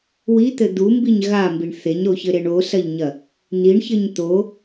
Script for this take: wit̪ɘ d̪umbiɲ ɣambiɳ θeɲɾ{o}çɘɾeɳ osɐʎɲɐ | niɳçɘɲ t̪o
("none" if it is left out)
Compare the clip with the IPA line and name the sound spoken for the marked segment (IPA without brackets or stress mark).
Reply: o